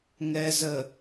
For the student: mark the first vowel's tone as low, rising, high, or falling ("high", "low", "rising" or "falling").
low